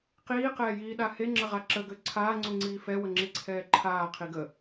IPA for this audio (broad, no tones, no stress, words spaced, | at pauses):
qiːqɛːjiːɗa heŋ͡ǁəʁa ǁəɡø ǀʰaːŋ͡ǀuŋ͡ǀiː fɛwəŋ͡ǁiǀʰɛː ǃʰaːqʰiɡ ə